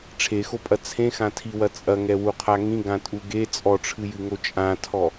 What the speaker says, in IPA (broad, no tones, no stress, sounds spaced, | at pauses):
ʈ͡ʂʰ e x o pʼ ɐ t͡sʰ ẽ x ã tʰ i w ɐ t͡sʼ ɐ ŋ ɛ w u qʰ a ŋ ĩ ɡ ã tʼ u ɡ e t͡sʼ ɔ ʈ͡ʂʰ ɨ j ɨ ŋ o t͡ʃʼ ã tʰ ɔ